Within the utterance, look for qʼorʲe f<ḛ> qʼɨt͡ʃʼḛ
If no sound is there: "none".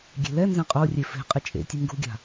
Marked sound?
e̤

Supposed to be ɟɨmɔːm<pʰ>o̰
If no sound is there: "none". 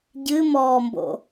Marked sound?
b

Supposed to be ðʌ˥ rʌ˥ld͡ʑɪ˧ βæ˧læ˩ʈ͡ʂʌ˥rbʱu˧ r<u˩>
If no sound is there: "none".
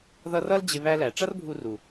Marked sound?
u˩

